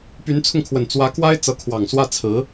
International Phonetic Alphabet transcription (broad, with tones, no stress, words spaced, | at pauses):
py˧˥nt͡sʰʊ˧ŋkʰwə˨˩n t͡swä˧˥kwa˥ɪ̯ t͡sɤ˧˥kʰwɑ˨˩ŋswä˥˩ t͡sʰɹ̩˧˥